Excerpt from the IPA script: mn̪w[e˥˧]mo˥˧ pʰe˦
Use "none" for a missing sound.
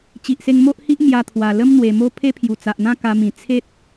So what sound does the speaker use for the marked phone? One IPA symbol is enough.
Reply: e˨˩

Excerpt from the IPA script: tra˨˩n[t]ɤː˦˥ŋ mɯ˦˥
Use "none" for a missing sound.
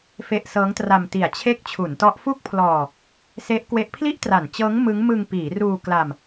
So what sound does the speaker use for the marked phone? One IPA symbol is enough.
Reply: t͡ɕ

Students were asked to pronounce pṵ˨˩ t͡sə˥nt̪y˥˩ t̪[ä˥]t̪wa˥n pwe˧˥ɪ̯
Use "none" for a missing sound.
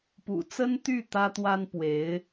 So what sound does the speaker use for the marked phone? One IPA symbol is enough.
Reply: ä˥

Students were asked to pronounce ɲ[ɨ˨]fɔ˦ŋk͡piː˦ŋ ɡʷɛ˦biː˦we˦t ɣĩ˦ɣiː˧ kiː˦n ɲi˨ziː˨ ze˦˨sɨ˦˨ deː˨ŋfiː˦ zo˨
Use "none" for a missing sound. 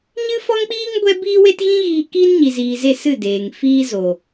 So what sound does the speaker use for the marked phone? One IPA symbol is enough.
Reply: ɨ˦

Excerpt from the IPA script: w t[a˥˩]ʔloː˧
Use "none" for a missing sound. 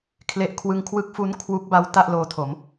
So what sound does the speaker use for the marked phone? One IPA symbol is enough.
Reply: a˥˩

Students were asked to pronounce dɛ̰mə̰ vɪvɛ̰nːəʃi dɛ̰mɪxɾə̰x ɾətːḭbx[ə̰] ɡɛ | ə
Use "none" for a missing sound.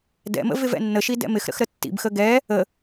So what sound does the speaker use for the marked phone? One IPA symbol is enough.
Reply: ə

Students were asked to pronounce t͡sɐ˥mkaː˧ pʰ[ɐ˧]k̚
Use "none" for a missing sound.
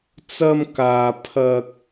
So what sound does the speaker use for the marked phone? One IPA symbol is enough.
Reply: ɐ˧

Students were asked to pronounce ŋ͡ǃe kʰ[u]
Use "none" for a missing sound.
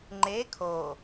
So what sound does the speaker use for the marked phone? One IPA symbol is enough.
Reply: o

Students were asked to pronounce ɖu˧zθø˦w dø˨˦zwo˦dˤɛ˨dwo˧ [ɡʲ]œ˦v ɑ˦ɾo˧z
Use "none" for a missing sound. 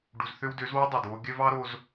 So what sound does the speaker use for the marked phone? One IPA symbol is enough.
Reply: ɡʲ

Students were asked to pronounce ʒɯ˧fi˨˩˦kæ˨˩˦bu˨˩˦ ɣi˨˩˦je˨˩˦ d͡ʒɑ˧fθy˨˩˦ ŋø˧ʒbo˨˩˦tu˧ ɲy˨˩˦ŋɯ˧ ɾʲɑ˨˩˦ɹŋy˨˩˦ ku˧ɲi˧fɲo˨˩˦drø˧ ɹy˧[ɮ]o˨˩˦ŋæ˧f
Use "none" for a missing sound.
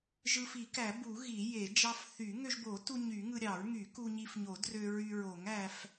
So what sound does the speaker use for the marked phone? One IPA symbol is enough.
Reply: ɹ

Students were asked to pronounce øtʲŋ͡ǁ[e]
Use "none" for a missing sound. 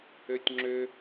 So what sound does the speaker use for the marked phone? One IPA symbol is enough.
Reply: ø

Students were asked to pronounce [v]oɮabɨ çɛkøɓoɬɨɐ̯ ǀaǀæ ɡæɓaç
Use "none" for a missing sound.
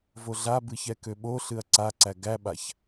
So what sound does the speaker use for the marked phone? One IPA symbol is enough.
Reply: v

